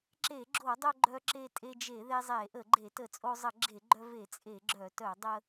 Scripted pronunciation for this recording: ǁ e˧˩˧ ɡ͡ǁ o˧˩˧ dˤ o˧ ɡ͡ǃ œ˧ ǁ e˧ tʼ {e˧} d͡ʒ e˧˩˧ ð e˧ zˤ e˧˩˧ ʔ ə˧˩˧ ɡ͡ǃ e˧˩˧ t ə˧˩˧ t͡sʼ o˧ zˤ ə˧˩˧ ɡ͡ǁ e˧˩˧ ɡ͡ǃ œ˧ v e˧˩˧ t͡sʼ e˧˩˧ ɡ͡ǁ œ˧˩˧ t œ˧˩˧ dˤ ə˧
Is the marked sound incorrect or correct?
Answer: correct